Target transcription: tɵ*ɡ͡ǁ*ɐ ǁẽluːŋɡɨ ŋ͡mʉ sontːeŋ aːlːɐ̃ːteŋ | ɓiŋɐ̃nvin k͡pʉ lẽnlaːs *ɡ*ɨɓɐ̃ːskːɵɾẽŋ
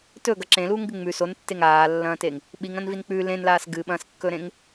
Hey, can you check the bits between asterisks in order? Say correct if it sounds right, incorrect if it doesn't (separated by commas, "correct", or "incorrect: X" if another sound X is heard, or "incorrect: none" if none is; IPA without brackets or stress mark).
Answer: incorrect: ɡ, correct